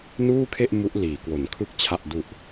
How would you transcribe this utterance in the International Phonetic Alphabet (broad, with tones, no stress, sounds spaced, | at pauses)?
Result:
n uː˥˩ kʰ e˥˩ ʔ m u˦˥ ʔ l iː˩˦ k w o˩˦ n kʰ ɯ˥˩ k̚ t͡ɕʰ a˨˩ ʔ d u˨˩ ʔ